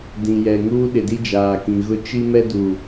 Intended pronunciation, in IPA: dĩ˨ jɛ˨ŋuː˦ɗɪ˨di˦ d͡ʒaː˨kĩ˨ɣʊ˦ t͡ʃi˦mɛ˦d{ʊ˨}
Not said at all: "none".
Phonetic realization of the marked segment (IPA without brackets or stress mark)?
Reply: u˨